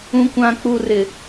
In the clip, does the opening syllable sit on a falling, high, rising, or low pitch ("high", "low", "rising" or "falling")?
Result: low